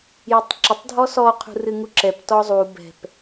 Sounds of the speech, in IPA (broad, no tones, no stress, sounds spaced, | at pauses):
j o tˤ ǁ ɘ tˤ dʱ ɔ s ɔ qʰ ṳ r ɨ ŋ u ǁ ɛ p t ɔ zˤ u b ɛ̤ p